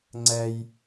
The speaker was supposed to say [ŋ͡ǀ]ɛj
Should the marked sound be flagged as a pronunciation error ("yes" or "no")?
no